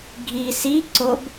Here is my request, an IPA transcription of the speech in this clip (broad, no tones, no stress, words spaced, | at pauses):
ɡʱi si ǀob